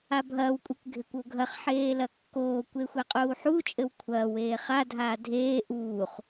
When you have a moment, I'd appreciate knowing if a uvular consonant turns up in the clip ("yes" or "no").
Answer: yes